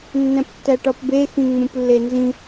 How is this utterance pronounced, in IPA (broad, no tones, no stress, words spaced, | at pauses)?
nːæ̃ptːæʈɒpbe xĩŋ͡mũplːenzĩ